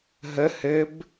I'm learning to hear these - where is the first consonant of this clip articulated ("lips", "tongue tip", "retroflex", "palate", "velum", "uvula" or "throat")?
throat